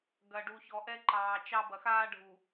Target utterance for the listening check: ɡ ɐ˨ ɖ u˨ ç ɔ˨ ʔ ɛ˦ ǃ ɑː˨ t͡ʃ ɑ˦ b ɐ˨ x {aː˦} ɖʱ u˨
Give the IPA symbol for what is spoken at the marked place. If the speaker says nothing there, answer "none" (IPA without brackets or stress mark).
aː˦